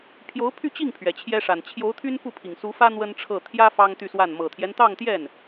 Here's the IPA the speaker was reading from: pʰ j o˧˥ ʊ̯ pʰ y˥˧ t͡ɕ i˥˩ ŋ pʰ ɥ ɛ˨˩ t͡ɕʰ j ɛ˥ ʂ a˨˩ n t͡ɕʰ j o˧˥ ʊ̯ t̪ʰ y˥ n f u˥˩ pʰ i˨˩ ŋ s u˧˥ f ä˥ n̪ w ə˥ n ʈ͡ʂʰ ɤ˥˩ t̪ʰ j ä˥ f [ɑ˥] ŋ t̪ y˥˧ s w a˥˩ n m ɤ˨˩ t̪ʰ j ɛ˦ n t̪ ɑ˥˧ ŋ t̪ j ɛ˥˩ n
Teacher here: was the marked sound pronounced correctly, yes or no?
yes